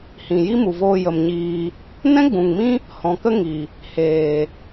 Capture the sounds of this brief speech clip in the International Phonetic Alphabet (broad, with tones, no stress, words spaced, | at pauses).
hĩ˨ji˦mu˨voː˧ jə˨mɲiː˧ | nɛ̃˦ɡ͡bũ˨ŋmĩ˦ | hɔ̃˨kə˦ŋi˨ | heː˨